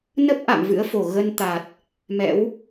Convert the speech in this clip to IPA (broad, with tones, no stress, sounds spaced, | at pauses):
n ə˦˥ p̚ ʔ a̰˧˨ m v ɨ̰˧˥ ə̯ f o˧˩ ɣ ə˧ n t̪ a˨˩ t̚ | m ɛ̰˧˥ w